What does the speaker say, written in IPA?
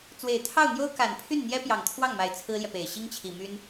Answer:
t͡s w e˨˩ ɪ̯ t̪ʰ ɑ˥˩ ʊ̯ n̪ j o˥ ʊ̯ k a˨˩ n pʰ y˥˩ n n̪ j ɛ˥ p j ɑ˨˩ ŋ t̪ʰ w ɑ˥˩ ŋ m a˨˩ ɪ̯ t͡sʰ ɹ̩˥ l j ɛ˨ p e˨˩ ɪ̯ ɕ i˥ ŋ t͡ɕʰ i˨˩ m y˥ n

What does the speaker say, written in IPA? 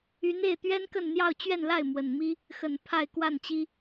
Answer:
y˧˥ n e˥˩ ɪ̯ t̪ ɥ ɛ˥ n k ə˥˧ n n̪ j ɑ˥˧ ʊ̯ t͡ɕ ɥ ɛ˥˧ n l a˥˩ ɪ̯ m w ə˨˩ n m i˥ | x ə˨˩ n pʰ a˥˧ ɪ̯ k w a˥˩ n t͡ɕ i˥

